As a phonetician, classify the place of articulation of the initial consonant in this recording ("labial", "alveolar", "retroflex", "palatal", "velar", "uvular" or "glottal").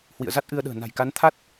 glottal